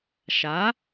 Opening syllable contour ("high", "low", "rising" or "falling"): rising